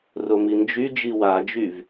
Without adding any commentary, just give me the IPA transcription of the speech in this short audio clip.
romind͡ʒy d͡ʒiwad͡ʒyv

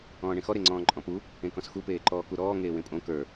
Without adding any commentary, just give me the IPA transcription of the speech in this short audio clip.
ɔ̃ːɳẽxɔ ɾeŋ͡ǀɔ̃ːǃʼɔ̃pu | ẽkɔ̃sxu peːǃɔːkuɾɔː ŋeːwẽpʼõ kə˞

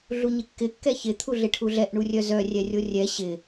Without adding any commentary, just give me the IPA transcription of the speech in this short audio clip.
ɮuɲɪkːɪ kːɛçɪ t̪ʰuɮɪʈʰuɮɛʔ ɳurʲœzœ rʲɛrʲorʲɛ ɕɪ

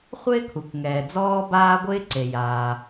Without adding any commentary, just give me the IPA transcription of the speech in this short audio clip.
χʷɪː˥kʰu˩kŋɛː˩ d͡zɔː˥baː˥ɡʷɪː˥ ǀe˩jaː˩

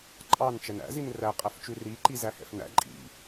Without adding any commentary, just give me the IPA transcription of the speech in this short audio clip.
ǃʼɑn t͡ʃɛnæ̰ zinræ qʼæft͡ʃʉri ǃizæhɛ̰fnæ̰ ǃʼḭ

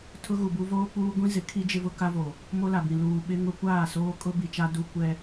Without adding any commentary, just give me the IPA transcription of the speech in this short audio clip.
tʰʊ˦ɣu˨bu˦ voː˦k͡puː˦ ɡʷĩ˦zɪ˨˦kʰi˦ d͡ʒɪ˦vʊ˦ka˦vo˨ | mo˦la˨bĩ˨ luː˨ɓɪ˦ŋʊ˦ kʷaː˦˨soː˦kʼʊ˦ bi˨t͡ʃa˦ du˦kʷɛ˦

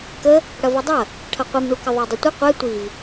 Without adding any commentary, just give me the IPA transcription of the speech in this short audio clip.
kə | ɽɐvɛdˤɐ | ʈʰɐqʷimɳukə ðˤadˤətʷə qʷɛ tʷiv

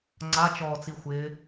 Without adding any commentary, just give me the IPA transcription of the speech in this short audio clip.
ŋ͡ǀat͡ʃɔːt͡sixʷɪː

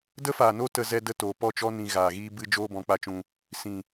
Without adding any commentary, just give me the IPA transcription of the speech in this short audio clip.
də˦faː˨no˦ tə˧ zɛ˧də˧ toː˨pɔ˦˨t͡ʃɔ˦ nĩ˨ ɣaː˨ɣiː˦ bɨ˦ d͡ʒoː˦bɔ̃˨˦k͡pa˧t͡ʃũ˧ | sĩ˨

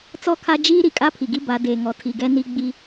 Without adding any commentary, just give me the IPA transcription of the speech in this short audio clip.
t͡sɔ˦˨kʰa˦ d͡ʒiː˦ ɾi˨kʼa˦pʰi˨ɡi˦ ba˨˦deː˨ŋɔ˨ tʰi˨ɡɛ˦ ni˦ ɡ͡bi˦

